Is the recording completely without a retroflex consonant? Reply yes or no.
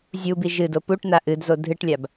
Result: no